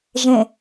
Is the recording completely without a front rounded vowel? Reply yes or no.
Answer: yes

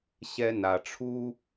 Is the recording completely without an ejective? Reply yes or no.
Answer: yes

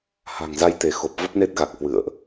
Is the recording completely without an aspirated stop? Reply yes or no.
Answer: yes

